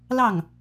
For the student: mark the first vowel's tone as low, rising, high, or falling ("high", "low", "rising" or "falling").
falling